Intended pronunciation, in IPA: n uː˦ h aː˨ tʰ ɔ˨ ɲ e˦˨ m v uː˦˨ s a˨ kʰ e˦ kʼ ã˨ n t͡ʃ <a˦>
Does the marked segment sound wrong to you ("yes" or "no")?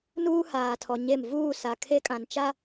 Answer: no